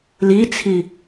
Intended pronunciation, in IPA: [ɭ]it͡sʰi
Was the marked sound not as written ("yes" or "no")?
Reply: yes